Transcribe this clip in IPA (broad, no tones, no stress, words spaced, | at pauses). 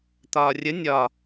t̪ɒːrʲə nʲɒ